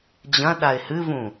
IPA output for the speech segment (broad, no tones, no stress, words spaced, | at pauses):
d͡ʑɐ̃ ɗaɪ̯hɨvũ